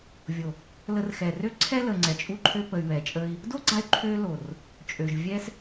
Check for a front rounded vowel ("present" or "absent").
present